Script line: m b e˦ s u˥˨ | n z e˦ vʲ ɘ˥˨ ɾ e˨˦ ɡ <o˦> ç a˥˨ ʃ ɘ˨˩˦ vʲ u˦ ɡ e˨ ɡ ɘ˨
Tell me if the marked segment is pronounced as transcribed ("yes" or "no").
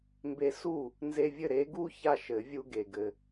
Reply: no